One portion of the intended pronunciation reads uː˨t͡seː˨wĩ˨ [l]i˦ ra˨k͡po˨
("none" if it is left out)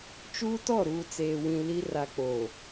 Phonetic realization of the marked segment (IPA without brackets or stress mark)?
l